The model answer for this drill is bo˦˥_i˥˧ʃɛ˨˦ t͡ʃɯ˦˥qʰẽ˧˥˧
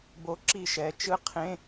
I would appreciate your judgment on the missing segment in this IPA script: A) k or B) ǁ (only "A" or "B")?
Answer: B